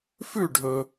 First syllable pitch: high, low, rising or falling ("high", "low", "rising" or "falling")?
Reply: falling